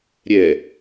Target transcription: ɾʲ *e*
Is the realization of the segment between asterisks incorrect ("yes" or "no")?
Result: yes